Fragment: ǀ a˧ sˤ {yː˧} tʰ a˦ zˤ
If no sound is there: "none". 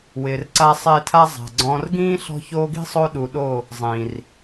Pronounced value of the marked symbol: ɪː˧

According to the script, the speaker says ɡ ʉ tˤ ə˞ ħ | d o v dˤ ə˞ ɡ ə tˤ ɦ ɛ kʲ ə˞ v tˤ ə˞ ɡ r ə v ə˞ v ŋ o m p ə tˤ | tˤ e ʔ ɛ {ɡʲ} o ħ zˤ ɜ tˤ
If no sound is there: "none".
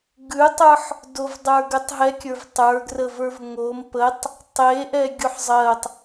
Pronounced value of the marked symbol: ɡʲ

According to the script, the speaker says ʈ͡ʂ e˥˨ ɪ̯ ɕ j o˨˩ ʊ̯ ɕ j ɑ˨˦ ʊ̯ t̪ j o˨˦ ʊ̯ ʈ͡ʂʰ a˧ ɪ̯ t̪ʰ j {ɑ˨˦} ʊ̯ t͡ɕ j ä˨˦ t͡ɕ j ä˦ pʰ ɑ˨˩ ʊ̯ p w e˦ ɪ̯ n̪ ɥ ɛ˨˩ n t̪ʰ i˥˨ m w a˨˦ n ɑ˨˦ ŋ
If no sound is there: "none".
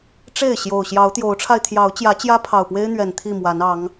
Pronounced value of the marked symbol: ɑ˨˦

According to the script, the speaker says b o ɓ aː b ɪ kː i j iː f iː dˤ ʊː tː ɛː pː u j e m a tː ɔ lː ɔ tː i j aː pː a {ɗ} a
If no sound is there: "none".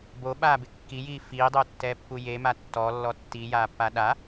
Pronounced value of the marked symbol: ɗ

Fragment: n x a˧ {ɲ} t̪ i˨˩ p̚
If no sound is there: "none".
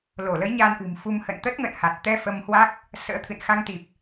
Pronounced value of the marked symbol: ŋ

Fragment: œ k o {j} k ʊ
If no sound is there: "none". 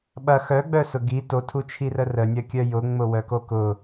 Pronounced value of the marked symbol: none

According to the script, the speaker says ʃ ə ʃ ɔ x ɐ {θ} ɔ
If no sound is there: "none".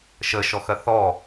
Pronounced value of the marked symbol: θ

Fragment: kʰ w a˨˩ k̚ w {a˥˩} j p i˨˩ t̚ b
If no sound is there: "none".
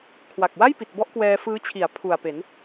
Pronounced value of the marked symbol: a˥˩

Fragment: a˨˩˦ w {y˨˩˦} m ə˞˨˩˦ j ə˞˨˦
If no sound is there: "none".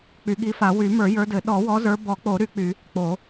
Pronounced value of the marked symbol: y˨˩˦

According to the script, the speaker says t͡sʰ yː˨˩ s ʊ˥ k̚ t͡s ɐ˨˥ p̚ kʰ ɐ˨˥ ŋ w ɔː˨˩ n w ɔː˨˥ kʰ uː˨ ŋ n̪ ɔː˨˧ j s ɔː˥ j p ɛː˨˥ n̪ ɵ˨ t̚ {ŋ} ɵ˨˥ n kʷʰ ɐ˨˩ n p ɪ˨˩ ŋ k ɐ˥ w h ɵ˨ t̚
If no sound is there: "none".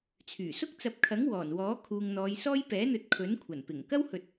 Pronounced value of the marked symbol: kʰ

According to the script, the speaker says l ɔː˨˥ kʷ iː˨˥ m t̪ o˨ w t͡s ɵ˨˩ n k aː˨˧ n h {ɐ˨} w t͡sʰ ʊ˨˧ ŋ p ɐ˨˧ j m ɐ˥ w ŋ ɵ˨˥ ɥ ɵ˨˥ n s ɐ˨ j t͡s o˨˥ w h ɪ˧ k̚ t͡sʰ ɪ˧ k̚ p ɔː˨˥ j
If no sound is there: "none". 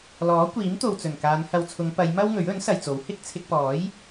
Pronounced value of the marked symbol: ɐ˨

